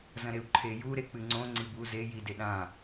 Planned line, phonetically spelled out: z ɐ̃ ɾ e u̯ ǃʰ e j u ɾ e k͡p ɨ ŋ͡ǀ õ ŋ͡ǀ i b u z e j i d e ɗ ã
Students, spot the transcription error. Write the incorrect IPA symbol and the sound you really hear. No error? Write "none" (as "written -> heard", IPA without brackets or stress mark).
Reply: none